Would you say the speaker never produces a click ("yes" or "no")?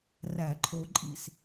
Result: no